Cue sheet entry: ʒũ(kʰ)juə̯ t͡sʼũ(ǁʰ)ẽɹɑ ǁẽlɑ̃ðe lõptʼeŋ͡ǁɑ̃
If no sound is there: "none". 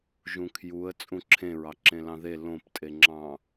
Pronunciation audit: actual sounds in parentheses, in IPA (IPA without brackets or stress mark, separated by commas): kʰ, ǁʰ